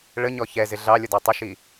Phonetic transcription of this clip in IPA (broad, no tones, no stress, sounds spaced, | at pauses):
ɭ ə ɲ ɔ ç ɛ z ɪ ɮ ɑ lʲ ʊ d ɑ tˤ ɪ ʃ i